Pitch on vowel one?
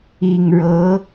low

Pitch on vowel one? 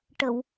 low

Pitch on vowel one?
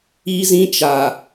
high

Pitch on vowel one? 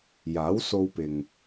rising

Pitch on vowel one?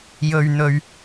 low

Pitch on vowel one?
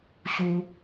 low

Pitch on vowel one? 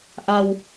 low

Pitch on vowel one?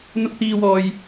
high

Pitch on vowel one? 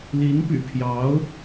rising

